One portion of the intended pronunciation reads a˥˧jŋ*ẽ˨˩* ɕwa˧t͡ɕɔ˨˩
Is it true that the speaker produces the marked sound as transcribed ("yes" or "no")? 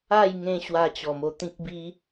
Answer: no